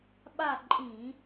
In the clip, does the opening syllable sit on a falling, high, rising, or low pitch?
falling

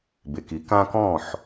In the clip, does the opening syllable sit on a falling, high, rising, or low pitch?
low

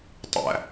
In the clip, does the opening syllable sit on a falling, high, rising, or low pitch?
low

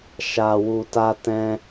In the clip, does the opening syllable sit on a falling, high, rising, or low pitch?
low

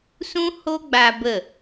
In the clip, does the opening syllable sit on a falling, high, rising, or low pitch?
high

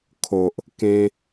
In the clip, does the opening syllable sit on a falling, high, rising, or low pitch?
low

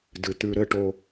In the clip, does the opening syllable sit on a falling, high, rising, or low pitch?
low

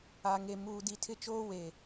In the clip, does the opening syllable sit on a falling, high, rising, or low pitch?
low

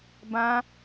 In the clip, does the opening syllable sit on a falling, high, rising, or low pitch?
high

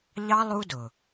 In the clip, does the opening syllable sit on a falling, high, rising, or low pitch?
high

